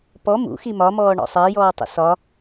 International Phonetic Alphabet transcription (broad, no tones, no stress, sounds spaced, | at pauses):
p ɔ m ṵ x i m ɒ m ɔː ɳ ɔ̰ sˤ æ j ɔː tˤ ə̰ s ɒ